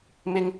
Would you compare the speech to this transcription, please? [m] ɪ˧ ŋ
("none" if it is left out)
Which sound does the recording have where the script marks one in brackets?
m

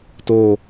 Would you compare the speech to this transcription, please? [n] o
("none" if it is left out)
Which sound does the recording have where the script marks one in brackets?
t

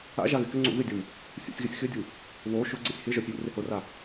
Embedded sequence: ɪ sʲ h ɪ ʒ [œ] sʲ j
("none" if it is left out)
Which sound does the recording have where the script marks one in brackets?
œ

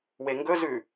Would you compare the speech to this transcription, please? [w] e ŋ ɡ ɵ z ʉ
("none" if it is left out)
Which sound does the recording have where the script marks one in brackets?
w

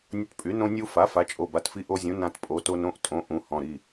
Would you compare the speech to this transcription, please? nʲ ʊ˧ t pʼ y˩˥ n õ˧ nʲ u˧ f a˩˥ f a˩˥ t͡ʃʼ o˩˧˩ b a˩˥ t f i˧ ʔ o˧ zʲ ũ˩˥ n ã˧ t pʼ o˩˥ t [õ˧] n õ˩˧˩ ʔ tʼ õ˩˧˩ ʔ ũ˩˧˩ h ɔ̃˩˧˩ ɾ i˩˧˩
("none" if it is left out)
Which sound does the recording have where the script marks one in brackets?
o˧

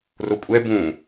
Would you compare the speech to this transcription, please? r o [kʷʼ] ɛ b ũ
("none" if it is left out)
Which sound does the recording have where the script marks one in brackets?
kʷʼ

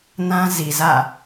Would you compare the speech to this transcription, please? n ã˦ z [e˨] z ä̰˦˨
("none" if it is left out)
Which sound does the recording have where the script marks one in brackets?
i˨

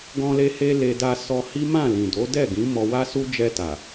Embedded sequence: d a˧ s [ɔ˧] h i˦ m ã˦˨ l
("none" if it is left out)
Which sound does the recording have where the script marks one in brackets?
ɔ˧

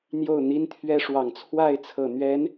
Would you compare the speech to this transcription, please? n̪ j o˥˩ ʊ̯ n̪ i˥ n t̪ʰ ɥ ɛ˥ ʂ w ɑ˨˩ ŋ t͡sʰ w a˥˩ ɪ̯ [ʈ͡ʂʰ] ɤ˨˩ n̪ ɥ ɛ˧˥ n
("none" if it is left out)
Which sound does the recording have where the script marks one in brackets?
t͡sʰ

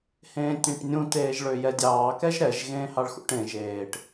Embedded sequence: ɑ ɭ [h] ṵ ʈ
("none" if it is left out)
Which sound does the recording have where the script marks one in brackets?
x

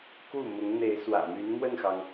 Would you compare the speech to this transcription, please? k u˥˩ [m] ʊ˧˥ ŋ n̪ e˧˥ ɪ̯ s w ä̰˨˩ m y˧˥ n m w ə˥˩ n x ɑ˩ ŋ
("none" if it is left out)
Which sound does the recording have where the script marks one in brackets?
m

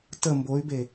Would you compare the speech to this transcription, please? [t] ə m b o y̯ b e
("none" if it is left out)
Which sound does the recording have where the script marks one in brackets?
t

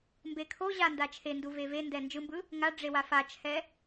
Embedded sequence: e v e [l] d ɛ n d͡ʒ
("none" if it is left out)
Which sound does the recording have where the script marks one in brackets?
n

